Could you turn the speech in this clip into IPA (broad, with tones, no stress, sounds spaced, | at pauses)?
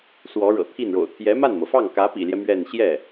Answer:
s w ɔ˧˥ ɻ ɤ̰˨˩ t̪ʰ i˥˩ n ɻ o̰˨˩ ʊ̯ t̪ʰ j ɛ˧˥ m a˥˩ n m ɤ˩ f ɑ˥˩ ŋ k ä˧˥ p ḭ˨˩ l j ɛ˦ m ɥ ɛ˥˧ n ɕ j ɛ˥˩